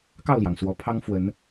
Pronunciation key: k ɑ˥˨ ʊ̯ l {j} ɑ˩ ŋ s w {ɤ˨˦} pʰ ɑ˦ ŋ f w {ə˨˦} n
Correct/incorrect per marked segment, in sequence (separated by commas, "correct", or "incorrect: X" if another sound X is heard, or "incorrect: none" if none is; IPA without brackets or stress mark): correct, incorrect: ɔ˨˦, correct